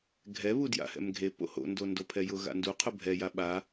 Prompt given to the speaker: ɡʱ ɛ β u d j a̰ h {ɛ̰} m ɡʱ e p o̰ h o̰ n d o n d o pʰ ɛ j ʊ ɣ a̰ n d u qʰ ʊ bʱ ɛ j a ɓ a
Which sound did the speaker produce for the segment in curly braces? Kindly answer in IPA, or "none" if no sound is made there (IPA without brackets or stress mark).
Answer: ɛ̰